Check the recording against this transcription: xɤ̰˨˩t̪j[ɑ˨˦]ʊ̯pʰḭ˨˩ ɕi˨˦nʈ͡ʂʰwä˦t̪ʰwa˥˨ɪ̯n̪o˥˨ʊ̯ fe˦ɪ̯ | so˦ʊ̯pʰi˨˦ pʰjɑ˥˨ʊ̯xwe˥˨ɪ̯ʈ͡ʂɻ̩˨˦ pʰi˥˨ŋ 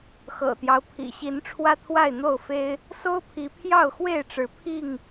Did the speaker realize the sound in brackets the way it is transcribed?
no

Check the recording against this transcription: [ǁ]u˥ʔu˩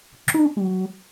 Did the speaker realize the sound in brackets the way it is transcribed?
yes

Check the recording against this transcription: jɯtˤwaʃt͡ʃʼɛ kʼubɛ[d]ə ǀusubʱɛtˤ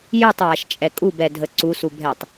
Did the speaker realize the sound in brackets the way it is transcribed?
no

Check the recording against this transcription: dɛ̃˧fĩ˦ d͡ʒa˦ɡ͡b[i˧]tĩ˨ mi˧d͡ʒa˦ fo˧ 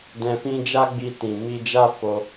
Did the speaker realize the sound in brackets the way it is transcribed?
yes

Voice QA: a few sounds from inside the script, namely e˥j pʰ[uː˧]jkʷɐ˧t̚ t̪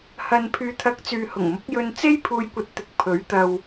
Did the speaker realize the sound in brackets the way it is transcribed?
yes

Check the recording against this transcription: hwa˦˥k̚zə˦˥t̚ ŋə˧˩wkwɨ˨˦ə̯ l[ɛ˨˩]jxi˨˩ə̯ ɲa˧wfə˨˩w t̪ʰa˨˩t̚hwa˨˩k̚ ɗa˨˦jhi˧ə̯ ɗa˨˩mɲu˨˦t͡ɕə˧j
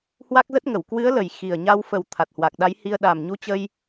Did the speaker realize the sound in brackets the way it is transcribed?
no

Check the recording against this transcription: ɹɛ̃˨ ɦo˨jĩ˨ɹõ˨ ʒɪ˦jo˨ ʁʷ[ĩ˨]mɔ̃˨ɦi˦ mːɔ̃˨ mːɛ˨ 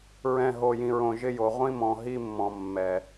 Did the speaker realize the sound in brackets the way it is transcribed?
no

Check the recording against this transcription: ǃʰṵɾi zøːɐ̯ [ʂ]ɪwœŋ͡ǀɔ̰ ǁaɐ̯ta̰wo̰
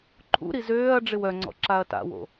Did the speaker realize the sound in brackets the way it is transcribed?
no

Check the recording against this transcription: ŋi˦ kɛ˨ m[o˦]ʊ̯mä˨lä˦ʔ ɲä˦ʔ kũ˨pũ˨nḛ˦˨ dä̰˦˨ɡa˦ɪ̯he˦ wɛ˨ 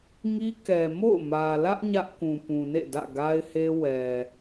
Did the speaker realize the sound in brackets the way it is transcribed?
no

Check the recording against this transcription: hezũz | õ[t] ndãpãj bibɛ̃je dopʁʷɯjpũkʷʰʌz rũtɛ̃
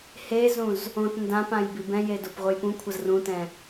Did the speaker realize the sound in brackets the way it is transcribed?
yes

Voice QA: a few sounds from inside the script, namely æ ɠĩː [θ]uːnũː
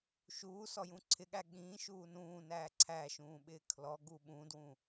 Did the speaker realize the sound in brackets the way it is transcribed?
no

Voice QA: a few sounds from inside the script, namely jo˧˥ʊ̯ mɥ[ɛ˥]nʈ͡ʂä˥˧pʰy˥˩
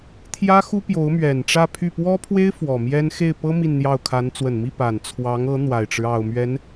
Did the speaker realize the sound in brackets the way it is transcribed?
no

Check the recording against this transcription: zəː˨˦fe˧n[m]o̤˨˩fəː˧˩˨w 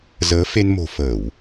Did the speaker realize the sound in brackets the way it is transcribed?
yes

